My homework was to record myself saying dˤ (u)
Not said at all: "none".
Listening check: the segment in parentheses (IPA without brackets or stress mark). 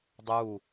u